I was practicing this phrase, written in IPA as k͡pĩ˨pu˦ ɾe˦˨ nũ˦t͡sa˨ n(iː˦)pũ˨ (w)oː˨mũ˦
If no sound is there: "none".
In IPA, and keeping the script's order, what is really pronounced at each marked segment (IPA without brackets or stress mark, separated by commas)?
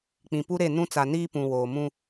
iː˦, w